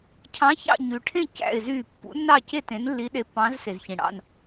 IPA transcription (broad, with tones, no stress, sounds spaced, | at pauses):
cʰ ɑ̃˧˥ ç ɑ̰˥˧ ɲ y˨ ʈʰ ẽ˥˧ c æ̰˥˧ ɪ̯ z yː˥˧ pː ṵ˧˥ nː ɑ˥˧ c e˥˧ t ẽ˧˥ n lː i˧˥ ɗ e˧˥ pː ɑ̃ː˧˥ z s e˨ z ç ĩ˨ ɽ ɑ̰˥˧ n